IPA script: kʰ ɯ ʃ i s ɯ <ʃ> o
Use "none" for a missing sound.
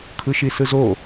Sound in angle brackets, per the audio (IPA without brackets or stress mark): z